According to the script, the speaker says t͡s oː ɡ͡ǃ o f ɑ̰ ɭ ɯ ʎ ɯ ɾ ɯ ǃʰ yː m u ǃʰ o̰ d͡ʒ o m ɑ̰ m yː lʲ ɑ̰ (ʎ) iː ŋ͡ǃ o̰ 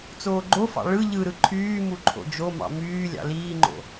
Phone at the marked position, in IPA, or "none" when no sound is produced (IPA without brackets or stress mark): l